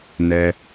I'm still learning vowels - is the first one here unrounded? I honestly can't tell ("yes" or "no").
yes